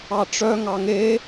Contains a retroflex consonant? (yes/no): yes